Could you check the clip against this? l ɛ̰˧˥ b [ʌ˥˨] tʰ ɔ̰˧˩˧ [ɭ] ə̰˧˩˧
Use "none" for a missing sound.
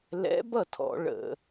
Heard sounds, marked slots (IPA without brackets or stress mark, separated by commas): ʌ˥˨, ɭ